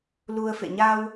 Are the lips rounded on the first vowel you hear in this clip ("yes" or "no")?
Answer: yes